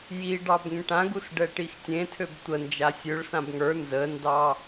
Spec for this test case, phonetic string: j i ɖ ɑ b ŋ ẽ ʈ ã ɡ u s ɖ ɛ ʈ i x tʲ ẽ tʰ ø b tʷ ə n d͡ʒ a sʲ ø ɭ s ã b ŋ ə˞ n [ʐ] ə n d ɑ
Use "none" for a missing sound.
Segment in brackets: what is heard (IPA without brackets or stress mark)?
z